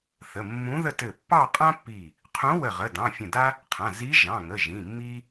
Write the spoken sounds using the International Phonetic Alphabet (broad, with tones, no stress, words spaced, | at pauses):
θə˩˧˩mːũ˧˥ðə˥˧ tɘ˧˩pːɑ˥˧qʼã˥pːi˧˩ | qʰũ˧˥wə˧˩ ʁə˩˧˩dɑ̃˩˧˩fʲə̃˧˩da˥ | qʰã˩˧˩ zi˧˥ ʒɑ̃˩˧˩ŋə˩˧˩ ʒĩ˩˧˩mːi˥